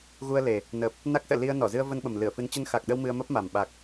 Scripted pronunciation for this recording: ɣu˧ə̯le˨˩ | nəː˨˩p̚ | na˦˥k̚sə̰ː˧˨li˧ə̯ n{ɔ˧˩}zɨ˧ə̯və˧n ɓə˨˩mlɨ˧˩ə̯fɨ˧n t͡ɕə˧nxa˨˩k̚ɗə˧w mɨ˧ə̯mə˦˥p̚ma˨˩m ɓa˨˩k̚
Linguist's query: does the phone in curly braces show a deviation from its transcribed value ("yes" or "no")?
no